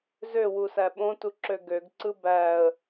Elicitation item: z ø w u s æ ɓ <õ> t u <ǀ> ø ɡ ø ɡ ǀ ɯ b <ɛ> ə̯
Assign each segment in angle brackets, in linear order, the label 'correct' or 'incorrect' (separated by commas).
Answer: correct, incorrect, incorrect